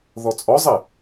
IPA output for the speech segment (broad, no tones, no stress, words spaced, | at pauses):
ðɔt͡sʼɔzˤɛ